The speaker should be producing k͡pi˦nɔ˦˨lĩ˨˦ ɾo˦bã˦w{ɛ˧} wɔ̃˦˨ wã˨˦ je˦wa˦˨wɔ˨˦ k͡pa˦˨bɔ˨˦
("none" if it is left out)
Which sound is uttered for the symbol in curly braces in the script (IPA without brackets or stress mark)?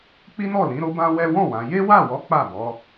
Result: ɛ˦